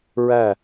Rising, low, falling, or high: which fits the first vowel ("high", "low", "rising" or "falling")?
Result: falling